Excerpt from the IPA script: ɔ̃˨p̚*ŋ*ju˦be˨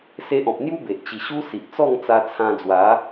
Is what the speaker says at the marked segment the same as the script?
no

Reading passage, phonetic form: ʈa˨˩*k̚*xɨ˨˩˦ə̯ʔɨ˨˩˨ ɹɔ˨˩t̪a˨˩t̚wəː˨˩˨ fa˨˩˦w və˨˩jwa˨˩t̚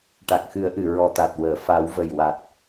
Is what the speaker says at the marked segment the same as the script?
yes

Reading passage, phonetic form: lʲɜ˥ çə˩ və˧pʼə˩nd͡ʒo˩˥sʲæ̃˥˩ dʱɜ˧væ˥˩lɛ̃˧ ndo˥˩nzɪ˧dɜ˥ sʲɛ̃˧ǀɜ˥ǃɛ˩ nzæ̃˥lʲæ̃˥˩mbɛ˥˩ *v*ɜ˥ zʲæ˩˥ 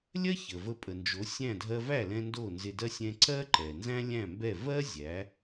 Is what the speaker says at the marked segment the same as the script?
yes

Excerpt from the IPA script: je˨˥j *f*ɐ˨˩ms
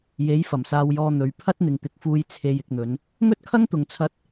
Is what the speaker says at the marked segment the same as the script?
yes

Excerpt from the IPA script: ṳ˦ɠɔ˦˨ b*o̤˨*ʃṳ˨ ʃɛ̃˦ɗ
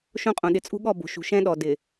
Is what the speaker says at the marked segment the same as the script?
yes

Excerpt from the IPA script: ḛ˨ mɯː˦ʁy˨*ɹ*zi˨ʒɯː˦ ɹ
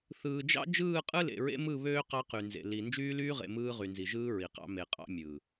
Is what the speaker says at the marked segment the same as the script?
no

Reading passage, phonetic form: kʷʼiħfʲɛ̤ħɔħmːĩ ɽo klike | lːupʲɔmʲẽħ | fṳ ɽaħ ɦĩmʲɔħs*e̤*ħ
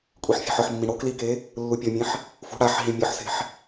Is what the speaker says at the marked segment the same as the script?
yes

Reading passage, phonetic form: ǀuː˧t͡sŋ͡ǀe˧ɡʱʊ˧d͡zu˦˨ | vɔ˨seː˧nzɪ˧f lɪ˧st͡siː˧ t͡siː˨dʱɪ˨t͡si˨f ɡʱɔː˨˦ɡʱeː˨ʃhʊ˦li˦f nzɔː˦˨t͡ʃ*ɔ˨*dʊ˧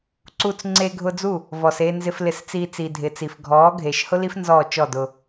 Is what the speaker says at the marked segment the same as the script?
no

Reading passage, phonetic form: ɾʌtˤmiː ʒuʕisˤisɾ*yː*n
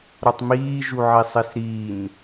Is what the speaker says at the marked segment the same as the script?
no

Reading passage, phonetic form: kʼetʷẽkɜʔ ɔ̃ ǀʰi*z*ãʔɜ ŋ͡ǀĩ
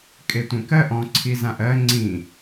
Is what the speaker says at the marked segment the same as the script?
yes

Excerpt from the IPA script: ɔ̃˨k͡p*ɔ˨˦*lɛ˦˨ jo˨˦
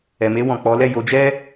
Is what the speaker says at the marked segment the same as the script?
yes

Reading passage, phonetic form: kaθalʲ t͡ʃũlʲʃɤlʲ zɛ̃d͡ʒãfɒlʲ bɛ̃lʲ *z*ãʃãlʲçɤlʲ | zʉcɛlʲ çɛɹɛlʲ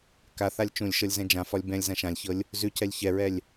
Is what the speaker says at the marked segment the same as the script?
yes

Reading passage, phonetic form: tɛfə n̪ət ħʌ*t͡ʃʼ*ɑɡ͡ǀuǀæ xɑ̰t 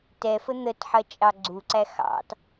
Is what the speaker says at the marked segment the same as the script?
yes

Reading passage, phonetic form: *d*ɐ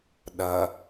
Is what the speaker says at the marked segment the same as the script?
no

